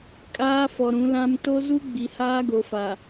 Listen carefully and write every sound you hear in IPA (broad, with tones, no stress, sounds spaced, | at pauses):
kʼ aː˦ f ɔ˨ ɾ ũ˨˦ l ã˦ m t o˦ z u˦ ɡ͡b i˨ h aː˦ ɡ o˨ f a˨